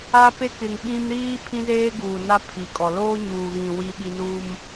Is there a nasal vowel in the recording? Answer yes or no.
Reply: yes